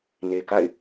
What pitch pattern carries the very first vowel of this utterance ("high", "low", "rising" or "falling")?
low